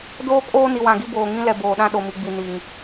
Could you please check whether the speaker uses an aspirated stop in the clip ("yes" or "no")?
no